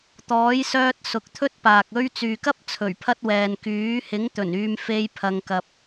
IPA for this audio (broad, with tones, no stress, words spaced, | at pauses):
t̪ɔː˨˥jsœː˧t̚ sʊ˨˥k̚t̪ʰɵ˥t̚paː˨k̚ ɵ˧ɥ t͡syː˨kɐ˥p̚ t͡sʰɵ˨˩ɥpʰɐ˧t̚ wɛː˨nkyː˨˥ hɪ˨˥ŋt̪ɵ˨˩n yː˨mfe˨˧j pʰɐ˨ŋkɐ˨p̚